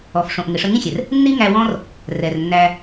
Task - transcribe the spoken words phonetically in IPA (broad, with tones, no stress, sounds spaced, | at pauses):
ɔ˨ f ʂ õ˨ ʔ ŋ ɪ˨ ʂ ə˧ ŋ ĩ˦ xʲ ɛ˨ r | nː i˦ ŋ æ˧ w ɔ̃˦ r | r ɛ˨ r nː æ˧